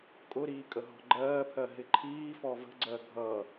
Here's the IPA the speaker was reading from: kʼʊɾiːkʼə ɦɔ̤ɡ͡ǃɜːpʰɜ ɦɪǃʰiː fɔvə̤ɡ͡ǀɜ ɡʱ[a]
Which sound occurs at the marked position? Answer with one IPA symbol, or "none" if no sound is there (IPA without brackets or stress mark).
ʌ